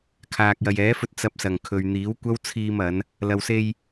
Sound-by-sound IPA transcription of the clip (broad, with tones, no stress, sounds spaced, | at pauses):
kʰ aː˨ k̚ j ɐ˨ j ɛː˨˥ f ɵ˧ t̚ t͡s ɐ˧ p̚ s ɐ˨˩ ŋ kʰ ɵ˨ ɥ n̪ iː˨˥ w kʷ ɐ˥ w t͡sʰ iː˧ m ɐ˨˧ n | l ɐ˨ w s e˧ j